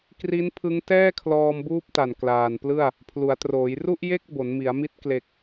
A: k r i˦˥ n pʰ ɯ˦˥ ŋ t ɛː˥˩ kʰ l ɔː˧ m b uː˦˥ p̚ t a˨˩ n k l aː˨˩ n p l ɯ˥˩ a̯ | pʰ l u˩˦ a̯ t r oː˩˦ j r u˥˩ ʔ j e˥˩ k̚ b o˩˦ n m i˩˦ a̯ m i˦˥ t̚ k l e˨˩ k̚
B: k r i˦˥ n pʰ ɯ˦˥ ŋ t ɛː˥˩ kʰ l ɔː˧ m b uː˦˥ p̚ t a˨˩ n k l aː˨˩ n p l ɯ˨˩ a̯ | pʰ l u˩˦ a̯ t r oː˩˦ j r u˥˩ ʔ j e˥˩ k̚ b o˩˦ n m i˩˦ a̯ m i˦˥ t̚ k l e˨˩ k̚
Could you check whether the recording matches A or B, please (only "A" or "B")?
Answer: A